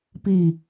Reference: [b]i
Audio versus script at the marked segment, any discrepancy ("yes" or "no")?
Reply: yes